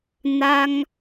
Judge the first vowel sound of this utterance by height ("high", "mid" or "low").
low